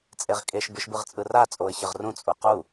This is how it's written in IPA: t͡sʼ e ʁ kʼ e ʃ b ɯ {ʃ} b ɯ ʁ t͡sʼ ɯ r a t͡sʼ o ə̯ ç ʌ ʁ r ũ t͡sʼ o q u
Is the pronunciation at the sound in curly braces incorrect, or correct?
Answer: correct